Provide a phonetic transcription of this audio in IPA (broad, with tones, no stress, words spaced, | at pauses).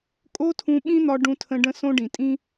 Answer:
kʼo˦tʰũ˧ ɓĩ˦n̪ɒ˧ ɖũ˧tʰə̃˧ ɖə̃˧sõ˧ ɖĩ˨tʼĩ˦